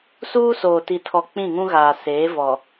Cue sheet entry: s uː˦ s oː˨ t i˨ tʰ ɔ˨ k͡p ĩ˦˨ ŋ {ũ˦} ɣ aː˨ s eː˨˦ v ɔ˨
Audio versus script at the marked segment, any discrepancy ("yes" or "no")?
no